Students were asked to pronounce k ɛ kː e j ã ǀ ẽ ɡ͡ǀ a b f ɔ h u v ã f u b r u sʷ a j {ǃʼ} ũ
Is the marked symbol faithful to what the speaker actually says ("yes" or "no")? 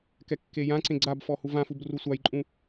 yes